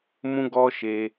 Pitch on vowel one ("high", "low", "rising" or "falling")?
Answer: high